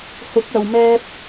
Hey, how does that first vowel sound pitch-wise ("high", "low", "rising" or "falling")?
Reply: rising